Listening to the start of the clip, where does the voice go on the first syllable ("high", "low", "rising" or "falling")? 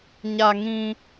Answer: high